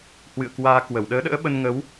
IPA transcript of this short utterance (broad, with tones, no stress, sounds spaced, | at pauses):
h w ɨ̰˧˨ ə̯ k w aː˧ k w ə˧˩ w ɗ əː˨˦ ɗ ə̰ː˧˥ ɓ ə˧ n ŋ ə˨˦ w